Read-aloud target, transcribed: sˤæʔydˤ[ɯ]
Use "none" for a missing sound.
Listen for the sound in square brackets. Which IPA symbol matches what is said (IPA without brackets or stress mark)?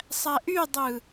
ɯ